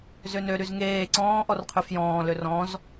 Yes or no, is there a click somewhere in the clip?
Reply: yes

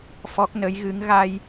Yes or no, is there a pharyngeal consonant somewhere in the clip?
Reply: no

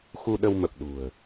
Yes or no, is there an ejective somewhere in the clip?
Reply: no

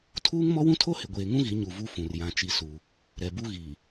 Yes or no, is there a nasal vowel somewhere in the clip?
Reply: yes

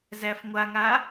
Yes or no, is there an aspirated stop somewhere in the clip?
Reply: no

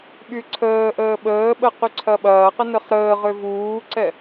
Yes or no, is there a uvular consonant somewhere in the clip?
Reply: yes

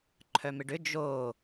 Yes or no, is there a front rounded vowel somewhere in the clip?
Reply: yes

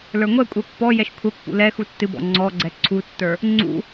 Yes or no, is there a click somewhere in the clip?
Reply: yes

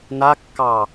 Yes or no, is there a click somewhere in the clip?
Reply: no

